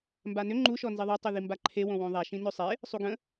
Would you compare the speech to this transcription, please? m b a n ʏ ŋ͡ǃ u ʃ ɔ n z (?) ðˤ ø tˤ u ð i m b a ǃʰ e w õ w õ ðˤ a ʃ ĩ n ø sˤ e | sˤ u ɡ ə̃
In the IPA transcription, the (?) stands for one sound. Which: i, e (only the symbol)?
i